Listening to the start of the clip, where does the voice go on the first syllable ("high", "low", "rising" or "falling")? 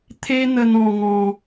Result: high